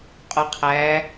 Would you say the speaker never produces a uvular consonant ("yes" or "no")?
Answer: no